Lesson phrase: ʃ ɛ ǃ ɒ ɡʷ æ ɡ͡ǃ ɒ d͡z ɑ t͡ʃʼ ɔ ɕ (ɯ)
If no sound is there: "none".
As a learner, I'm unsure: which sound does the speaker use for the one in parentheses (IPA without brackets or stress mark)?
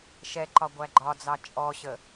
ə